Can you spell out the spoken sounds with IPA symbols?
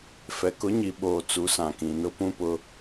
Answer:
f ɛ˨ k ʊ˨˦ ɲ i˨ ɓ oː˨ t͡s u˨˦ s ã˨ k ĩ˨ n ʊ˦ p ũ˦ p ʊ˦

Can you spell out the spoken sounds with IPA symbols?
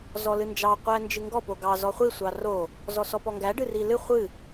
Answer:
z ɔ l ɨ n d͡ʒ ɑ qʷ æ n d͡ʒ ɨ ŋ ɡ ɔ p o ɡ ɑ z ɔ χʷ i sʷ ɑ r o | z ɔ s ɔ p ɔ ŋ ɡ æ ɖ ɨ r i l ɨ χʷ ɨ

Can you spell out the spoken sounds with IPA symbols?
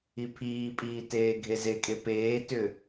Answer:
i pʰ iː pʼ iː t eː ɡʱ e z e kʼ e p eː t ʏ

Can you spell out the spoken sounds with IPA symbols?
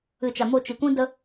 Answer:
ɨ˨ t͡ʃ a˨ m o˧ t͡ʃ i˨ kʷ ĩ˦ d ə˧

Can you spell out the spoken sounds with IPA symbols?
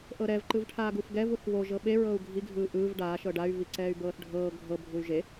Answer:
ʔ ɤ ɾ ɛ v ǃ ɯ v ʈʰ aː ɡ u f ɡ ɛ v u θ β o ʒ ɤ ɓ e ɹ ɤː u̯ ɡʱ i ɡʱ ɯː ʔ ɯː v ɖ aː ʃ ɤ ɖ a y̯ v i ǀ ɛː y̯ b ɤː θ ɖʱ ɤː ɡʱ ɤ bʱ u y̯ ʒ e

